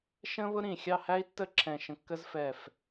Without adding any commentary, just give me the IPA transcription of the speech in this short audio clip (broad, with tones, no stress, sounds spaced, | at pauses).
ʃ ə̃ː˥ β ʊ˥ ɾ ĩ˧˩ xʲ ɑ˥˧ h æ˥ i̯ tː ə˥˧ ǁʰ ɛ̃˧˩ ʃ ə̃˧ kː ə˥ z f ɛ˧˩ f